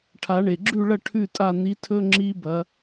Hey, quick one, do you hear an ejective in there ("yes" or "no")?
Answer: yes